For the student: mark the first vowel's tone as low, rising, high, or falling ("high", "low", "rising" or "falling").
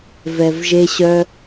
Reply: low